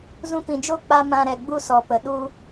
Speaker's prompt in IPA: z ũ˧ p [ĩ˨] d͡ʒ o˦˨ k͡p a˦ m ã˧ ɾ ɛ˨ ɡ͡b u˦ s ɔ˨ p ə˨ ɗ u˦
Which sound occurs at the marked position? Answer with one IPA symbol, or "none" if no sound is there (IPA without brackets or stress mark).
ĩ˨